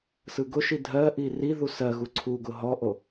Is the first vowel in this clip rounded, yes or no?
no